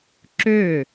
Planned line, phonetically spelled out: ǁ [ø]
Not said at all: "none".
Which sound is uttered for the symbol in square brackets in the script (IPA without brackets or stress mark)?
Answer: ø